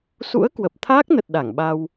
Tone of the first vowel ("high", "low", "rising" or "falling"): rising